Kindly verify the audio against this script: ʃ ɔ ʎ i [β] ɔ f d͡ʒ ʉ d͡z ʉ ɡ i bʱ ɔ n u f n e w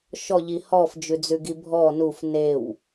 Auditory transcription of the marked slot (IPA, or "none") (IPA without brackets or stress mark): h